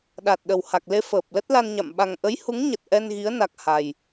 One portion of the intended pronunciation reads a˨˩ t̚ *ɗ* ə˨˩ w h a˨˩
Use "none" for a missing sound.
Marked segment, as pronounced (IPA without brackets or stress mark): ɗ